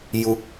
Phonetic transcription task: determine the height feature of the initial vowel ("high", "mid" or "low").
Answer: high